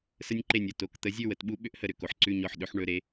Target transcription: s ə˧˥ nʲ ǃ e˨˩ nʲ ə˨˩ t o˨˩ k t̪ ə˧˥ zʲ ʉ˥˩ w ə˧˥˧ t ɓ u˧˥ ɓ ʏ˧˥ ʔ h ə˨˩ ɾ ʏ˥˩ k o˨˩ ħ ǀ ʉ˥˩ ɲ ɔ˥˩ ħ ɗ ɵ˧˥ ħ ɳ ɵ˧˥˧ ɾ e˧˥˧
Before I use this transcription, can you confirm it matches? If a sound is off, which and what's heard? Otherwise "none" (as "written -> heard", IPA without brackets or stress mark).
none